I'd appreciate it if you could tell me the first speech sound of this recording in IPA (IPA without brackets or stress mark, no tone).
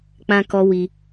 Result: k͡p